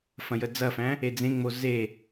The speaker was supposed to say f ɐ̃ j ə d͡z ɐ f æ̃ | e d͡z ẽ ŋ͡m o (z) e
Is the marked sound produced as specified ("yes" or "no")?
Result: yes